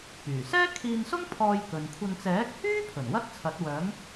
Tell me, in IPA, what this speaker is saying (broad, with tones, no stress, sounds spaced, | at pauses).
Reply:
p yː˨˩ s ɛː˥ kʰ iː˧ n s ʊ˥ ŋ pʰ ɔː˧ j k ɵ˨ n kʷʰ ɐ˧ n t͡s ɛː˨˥ k̚ h yː˥ pʰ ɵ˨˩ n w ɐ˥ t̚ t͡sʰ ɐ˨˥ t̚ w œː˨˥ ŋ